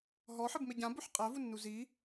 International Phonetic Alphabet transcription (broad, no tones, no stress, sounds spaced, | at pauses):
ɦ ɔ ħ ɘ b m e ɟ ã b u ħ qʼ æ v u nː u z i